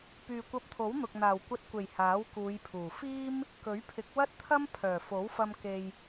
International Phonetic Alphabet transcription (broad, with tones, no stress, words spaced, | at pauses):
pyː˨kʷɐ˧p̚t̪ʰo˨˥wn̪ʊ˨k̚ n̪aː˨˩wkʷɐ˧t̚kʷe˨˩j haː˨˥wkuː˨˧jpʰuː˨˩ fiː˥m | kɵ˨˥ɥpʰɪ˨˥k̚wɐ˥t̚t̪ʰɐ˥m pʰœː˨˩ fo˨˥wfɐ˧m ke˨j